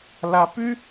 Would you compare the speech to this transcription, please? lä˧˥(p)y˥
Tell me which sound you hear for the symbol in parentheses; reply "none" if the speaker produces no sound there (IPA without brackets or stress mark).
p